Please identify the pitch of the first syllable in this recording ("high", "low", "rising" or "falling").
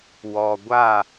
low